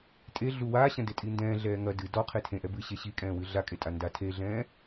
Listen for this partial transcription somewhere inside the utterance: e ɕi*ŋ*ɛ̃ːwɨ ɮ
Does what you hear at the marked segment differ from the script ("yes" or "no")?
yes